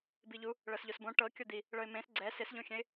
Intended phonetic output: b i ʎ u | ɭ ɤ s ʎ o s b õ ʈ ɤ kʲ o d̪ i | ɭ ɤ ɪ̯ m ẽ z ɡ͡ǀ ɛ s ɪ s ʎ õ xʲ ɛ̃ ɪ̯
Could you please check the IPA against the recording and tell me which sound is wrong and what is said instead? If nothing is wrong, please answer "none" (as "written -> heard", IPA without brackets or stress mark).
z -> s